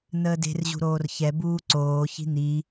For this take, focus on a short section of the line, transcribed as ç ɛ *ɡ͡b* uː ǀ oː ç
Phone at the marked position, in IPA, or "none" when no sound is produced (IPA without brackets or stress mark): b